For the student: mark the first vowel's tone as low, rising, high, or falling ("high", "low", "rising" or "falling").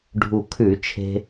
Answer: low